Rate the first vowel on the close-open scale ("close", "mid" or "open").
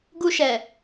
close